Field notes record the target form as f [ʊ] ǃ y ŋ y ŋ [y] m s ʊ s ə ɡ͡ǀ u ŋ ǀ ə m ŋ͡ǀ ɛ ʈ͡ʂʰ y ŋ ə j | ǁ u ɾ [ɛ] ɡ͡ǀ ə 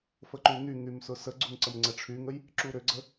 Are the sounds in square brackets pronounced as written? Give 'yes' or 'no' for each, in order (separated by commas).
no, yes, no